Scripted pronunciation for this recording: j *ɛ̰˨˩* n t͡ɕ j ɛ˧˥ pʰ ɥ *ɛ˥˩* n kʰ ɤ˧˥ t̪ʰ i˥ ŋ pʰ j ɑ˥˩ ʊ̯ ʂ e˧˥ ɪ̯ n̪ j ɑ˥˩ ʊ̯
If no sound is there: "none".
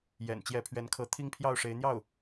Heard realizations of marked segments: ɛ̰˨˩, ɛ˧˥

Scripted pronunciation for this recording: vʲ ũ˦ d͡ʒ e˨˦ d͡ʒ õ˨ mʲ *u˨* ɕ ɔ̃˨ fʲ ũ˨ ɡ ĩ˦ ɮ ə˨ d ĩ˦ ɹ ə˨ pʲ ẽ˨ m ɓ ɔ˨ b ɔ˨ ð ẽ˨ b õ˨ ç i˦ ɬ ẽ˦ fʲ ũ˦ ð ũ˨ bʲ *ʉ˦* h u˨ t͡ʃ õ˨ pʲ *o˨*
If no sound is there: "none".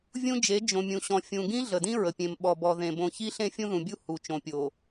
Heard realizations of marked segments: ũ˨, u˦, o˨

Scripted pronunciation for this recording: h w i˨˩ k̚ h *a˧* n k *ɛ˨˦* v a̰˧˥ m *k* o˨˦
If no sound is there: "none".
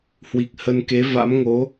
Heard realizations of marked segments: ə˧, e˨˦, ŋ

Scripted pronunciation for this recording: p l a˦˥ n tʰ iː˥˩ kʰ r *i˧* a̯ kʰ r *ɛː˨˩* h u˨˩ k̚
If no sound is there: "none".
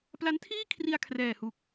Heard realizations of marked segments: i˧, ɛː˨˩

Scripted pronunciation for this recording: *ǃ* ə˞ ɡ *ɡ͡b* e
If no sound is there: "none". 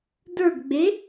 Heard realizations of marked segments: d, ɡ͡b

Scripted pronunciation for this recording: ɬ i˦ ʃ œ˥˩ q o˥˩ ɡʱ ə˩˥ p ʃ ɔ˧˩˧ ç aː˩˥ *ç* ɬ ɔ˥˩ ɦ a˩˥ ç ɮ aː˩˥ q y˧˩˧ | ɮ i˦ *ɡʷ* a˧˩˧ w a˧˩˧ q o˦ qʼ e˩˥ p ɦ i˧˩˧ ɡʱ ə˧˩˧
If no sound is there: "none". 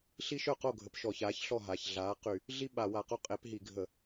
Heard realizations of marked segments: ç, ɓ

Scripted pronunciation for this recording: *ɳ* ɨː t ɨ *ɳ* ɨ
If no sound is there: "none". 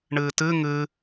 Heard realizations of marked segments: ɳ, ŋ

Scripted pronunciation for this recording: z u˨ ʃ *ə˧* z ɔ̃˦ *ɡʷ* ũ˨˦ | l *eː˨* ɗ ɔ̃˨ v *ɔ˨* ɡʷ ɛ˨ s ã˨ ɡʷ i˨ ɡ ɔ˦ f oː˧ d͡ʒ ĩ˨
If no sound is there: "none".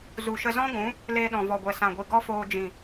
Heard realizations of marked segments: ə˧, ɡʷ, eː˧, ɔ˨

